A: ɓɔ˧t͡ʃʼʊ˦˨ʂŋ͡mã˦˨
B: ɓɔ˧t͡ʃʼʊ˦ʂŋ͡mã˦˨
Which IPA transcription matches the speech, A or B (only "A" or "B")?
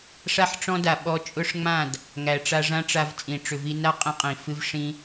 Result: B